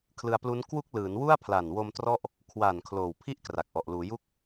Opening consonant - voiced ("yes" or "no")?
no